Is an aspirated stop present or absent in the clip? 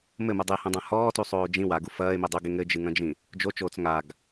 absent